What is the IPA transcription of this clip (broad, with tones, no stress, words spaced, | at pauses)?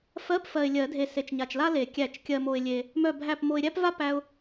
fɜ˧˥˧pfɜ˨ɪ̯lʲɜ˨˩˦dʱe˨ se˨t͡ʃɲa˨t͡ʃla˥le˨˩˦ kʲæ˨˩˦t͡ʃkʲɜ˨mo˨ɪ̯lʲe˨ | mœ˥˨bʱæ˥˨p mo˨ɪ̯ɾʲæ˥pva˥ pæ˥ʊ̯